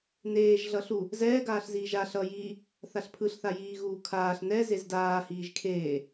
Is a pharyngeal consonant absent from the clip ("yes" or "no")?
yes